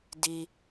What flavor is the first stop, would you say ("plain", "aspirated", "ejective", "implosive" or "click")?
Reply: plain